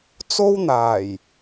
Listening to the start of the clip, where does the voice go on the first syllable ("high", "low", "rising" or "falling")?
high